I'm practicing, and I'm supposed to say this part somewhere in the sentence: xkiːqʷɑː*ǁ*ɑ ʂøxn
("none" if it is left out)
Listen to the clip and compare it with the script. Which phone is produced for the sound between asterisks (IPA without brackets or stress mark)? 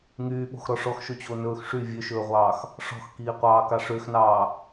k